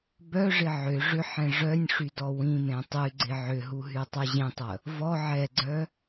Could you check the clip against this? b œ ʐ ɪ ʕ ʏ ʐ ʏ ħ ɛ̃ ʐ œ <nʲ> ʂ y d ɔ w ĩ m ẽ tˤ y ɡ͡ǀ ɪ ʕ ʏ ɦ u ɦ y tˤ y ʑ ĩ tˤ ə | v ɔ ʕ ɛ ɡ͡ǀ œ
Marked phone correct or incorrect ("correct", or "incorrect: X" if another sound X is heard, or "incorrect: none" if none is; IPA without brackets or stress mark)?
correct